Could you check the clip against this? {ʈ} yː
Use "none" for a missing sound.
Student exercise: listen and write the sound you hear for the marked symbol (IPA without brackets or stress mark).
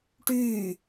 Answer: ʈ